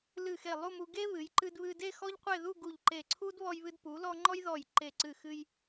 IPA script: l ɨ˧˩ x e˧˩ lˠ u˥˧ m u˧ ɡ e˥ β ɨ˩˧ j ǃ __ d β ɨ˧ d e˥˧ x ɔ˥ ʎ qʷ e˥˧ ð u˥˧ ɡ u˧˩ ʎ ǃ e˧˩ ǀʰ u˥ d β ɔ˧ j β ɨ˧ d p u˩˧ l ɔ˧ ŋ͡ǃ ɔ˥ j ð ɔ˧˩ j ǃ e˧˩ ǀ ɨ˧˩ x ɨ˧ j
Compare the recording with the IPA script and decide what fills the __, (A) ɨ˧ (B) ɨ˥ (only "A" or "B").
A